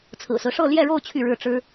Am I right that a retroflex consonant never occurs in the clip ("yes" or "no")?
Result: no